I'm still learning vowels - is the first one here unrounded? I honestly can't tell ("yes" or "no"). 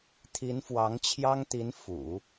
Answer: yes